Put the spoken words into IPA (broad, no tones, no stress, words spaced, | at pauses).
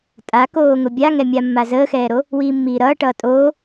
tʼakoːŋʊ bʲaŋɛmʲa mːazəːxɛːɾo | wiːmːiːɾʌːʈʌː tʼoː